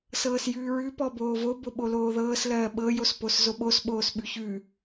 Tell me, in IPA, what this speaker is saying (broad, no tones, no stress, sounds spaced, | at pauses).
s ɤː s j ʉː ɹ ʉ p ɔ b oː v o b o ɓ o l oː ð ɤː s l ɜː ɓ ɤ j o s p o s z o ɓ o s ɓ oː s ɓ ʉ ç ʉ